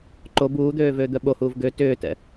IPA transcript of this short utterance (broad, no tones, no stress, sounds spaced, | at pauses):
ǃ o b uː d̪ øː v øː d̪ œ ɓ o h uː v ɡ ø t ʏː t ɛ̰